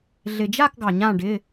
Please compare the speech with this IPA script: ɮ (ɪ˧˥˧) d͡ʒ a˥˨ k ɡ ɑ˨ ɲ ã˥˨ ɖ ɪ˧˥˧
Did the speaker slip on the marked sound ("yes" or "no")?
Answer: yes